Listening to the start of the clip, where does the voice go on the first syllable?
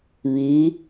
rising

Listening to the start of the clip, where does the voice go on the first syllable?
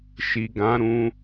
low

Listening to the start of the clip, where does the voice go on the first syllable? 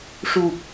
low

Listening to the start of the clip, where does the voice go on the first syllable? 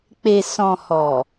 low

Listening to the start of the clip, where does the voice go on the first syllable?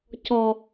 low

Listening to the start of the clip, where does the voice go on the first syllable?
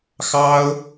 high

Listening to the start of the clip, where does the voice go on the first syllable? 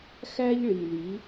high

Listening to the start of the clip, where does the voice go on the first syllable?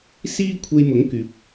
high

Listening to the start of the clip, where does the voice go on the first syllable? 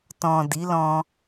low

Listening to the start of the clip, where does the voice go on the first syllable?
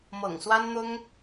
low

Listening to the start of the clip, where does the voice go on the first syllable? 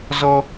high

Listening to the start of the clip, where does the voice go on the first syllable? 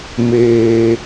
low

